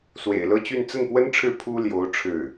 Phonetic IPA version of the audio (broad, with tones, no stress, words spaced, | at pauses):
swḛ˨˩ɪ̯lɤ˥˧t͡ɕy˥˧n t͡sə˥˩npwə˥nʈ͡ʂʰɻ̩˥˩ pʰu˥ljo˧˥ʊ̯ ʈ͡ʂʰɻ̩˥˩